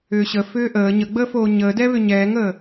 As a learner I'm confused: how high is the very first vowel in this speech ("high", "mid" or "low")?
high